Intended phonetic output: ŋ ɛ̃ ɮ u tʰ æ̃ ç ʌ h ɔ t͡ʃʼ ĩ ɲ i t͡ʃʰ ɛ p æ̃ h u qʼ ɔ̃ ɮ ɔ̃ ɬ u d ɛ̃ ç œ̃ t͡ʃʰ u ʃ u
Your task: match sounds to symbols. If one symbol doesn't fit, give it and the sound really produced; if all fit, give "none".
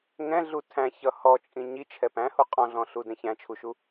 œ̃ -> æ̃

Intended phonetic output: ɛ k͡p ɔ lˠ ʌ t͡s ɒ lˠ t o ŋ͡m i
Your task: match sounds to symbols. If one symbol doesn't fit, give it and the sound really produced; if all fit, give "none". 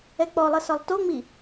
t͡s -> s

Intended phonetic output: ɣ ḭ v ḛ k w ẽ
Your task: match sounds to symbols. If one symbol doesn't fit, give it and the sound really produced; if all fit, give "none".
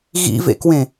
none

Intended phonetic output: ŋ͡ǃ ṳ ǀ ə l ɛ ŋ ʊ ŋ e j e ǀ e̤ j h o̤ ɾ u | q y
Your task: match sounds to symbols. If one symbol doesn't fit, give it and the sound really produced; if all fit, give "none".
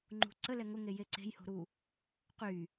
none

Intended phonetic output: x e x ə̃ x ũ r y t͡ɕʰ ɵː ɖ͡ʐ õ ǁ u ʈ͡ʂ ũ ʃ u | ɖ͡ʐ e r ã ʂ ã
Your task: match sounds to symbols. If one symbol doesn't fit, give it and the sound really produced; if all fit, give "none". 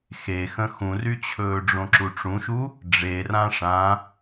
none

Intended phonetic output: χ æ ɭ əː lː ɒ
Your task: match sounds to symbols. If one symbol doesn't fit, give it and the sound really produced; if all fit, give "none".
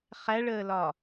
lː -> l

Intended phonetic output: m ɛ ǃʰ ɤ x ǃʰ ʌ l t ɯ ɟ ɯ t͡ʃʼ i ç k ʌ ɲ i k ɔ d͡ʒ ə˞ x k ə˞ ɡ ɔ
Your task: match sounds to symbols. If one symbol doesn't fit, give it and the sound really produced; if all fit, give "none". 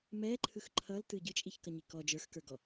ɤ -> ɯ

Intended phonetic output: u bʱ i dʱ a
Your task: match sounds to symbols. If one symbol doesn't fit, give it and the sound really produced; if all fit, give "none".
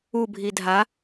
none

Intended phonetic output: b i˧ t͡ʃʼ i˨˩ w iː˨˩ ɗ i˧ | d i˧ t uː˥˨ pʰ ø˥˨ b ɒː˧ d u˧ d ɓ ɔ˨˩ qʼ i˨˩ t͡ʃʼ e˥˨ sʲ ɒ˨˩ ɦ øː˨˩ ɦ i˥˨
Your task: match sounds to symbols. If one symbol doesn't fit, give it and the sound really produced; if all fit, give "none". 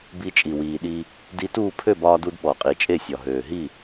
none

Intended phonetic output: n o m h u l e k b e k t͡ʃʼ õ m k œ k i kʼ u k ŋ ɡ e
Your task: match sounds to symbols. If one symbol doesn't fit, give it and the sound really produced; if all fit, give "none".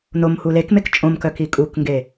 b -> m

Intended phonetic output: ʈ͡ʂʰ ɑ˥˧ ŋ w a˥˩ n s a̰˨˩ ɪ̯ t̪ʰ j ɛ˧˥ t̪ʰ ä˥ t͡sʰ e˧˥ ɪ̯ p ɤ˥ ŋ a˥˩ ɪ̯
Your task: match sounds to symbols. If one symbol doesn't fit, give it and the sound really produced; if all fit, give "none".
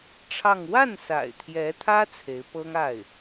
none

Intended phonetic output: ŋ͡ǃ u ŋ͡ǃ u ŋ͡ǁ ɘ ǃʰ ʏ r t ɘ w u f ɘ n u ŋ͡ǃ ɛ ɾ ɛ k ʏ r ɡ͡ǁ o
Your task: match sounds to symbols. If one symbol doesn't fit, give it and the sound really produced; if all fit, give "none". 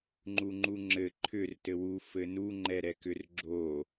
none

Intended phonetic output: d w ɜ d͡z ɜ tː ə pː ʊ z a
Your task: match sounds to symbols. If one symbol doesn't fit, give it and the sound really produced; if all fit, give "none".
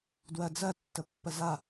ʊ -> ə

